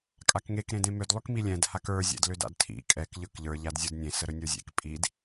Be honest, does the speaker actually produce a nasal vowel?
yes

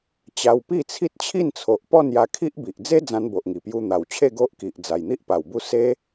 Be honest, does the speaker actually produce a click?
no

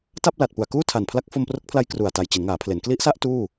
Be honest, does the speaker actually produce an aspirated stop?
yes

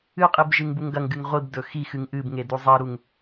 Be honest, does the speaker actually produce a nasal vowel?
no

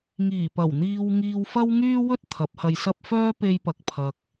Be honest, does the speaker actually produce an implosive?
no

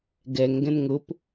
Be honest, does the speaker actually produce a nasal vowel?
yes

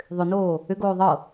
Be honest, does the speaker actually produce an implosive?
no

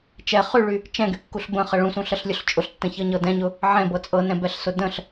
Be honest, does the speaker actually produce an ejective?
yes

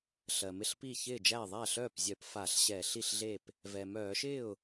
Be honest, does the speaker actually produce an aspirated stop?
no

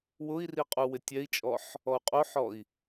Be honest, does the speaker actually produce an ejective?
yes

